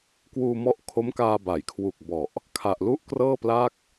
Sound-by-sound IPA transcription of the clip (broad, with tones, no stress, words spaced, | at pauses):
kwuː˧mɔ˦˥ʔkʰo˦˥mkaː˧ ba˩˦jkʰwu˨˩k̚bɔ˨˩ʔ | kʰa˨˩ʔlu˦˥ʔkrɤː˥˩pla˥˩k̚